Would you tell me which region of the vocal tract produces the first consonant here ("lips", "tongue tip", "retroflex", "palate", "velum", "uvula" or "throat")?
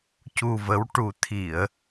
palate